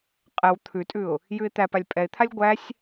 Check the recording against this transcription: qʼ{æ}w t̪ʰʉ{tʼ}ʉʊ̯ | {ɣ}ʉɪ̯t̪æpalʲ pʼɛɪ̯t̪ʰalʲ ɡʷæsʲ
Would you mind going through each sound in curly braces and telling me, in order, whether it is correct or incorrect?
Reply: incorrect: ɛ, correct, incorrect: j

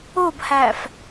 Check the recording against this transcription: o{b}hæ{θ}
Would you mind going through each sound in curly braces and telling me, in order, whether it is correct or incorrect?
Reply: correct, incorrect: f

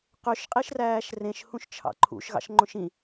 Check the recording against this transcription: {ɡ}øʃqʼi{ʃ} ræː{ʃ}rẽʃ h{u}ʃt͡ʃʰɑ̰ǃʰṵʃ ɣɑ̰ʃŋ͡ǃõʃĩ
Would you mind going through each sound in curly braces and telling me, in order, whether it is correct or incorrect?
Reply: incorrect: q, correct, correct, incorrect: ũ

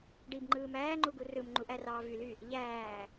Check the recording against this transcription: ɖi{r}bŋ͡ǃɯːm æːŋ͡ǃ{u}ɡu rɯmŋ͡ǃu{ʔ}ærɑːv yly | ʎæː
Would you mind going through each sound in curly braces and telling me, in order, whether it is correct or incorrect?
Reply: incorrect: none, correct, correct

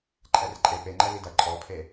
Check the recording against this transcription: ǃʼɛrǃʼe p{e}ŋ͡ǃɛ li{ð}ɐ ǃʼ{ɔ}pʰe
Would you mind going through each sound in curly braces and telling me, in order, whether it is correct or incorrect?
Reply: correct, incorrect: d, correct

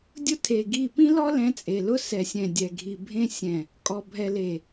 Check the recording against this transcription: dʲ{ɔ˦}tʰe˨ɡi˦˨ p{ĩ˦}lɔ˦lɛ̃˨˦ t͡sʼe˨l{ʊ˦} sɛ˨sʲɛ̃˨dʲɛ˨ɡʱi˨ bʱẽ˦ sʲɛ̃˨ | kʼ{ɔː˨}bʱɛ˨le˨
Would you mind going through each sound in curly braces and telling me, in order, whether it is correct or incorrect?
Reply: incorrect: ʊ˦, correct, correct, incorrect: ɔ˨

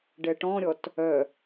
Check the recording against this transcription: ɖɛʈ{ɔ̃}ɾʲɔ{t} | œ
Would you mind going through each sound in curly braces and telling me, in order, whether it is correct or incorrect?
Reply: correct, correct

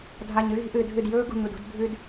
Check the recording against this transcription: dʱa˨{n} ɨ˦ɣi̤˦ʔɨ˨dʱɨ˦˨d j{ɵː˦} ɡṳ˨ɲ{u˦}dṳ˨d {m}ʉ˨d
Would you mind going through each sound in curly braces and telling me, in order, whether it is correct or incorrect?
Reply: incorrect: ɲ, correct, incorrect: u˦˨, incorrect: bʱ

